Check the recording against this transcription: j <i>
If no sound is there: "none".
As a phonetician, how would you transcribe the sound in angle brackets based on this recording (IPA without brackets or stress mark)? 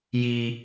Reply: i